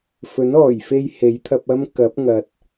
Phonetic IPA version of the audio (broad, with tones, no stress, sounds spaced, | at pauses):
f ɵ˨˥ n ɔː˨˩ j f e˧ j h e˨˥ j t̪ʰ ɐ˧ p̚ ɐ˥ m k ɐ˨˥ p̚ ŋ ɐ˨ t̚